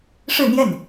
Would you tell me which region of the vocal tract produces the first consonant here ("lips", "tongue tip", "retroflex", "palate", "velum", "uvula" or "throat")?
retroflex